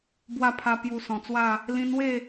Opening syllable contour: high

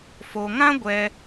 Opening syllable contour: low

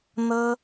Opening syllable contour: high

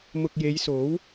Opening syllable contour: low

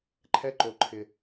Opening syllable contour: high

